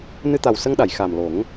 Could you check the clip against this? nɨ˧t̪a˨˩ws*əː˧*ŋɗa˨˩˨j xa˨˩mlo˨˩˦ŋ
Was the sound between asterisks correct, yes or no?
no